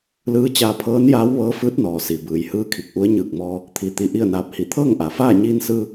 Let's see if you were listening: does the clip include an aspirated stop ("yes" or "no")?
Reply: yes